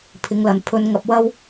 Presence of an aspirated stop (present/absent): present